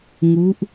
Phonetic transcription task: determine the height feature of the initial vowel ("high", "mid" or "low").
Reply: high